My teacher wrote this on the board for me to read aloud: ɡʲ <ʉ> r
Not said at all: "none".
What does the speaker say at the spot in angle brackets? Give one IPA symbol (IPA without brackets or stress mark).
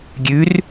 ʉ